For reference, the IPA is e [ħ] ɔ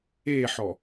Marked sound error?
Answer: no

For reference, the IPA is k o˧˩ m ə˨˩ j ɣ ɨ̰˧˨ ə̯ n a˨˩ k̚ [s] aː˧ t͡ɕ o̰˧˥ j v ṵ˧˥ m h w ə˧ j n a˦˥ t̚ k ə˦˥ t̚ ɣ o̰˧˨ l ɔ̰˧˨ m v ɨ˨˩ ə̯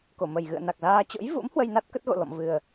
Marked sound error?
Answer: yes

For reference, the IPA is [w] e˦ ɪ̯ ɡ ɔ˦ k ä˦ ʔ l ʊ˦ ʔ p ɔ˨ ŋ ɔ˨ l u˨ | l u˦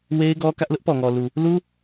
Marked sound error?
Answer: no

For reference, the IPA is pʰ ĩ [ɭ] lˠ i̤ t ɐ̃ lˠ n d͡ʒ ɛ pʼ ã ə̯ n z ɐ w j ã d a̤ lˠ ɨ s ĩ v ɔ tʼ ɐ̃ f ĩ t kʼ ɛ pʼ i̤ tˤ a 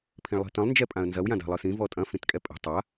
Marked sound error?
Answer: no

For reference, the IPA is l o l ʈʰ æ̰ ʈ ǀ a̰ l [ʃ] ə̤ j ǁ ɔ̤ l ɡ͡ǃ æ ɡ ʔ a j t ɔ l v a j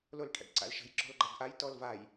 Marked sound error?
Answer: no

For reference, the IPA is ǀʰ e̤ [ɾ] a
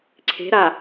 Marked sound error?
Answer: no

